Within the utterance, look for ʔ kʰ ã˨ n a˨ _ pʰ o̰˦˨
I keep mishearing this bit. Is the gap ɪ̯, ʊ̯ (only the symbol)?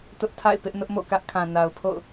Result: ʊ̯